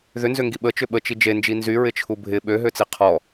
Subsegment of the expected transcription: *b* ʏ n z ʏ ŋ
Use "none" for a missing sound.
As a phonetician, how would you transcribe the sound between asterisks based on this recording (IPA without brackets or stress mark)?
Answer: ð